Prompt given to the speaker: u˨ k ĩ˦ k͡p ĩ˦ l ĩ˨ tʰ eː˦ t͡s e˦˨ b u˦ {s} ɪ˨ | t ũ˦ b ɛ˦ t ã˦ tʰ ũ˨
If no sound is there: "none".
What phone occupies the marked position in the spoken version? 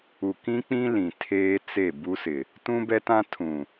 s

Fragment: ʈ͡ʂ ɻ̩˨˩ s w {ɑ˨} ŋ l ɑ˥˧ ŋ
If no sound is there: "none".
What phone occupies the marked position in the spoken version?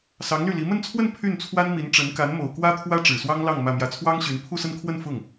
ɑ˥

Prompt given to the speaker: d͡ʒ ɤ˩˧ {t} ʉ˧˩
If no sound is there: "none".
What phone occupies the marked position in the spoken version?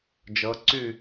ǀ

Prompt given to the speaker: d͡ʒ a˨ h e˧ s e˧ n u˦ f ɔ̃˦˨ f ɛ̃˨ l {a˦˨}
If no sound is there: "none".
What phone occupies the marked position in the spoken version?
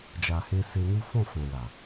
a˨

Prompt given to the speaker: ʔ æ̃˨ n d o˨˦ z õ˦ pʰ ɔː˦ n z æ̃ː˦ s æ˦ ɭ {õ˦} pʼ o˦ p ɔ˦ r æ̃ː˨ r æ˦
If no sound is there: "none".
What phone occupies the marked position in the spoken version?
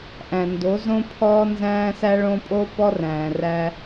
õ˦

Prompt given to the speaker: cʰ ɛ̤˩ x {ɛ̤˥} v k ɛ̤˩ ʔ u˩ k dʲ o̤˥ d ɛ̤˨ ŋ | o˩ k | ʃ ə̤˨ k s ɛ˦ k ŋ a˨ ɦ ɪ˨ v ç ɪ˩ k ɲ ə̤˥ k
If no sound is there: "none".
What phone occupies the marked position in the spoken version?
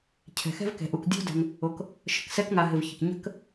ɛ̤˥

